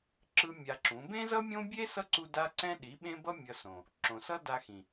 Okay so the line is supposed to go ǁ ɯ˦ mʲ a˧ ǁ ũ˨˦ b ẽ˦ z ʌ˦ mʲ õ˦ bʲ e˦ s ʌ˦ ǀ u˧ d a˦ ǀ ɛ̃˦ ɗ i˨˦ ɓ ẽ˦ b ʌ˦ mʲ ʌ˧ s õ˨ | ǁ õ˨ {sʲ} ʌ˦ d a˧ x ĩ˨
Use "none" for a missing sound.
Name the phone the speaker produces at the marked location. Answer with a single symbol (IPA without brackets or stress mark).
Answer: s